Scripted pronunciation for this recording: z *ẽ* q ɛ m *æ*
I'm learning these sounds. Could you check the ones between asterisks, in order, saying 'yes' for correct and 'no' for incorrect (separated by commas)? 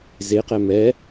no, no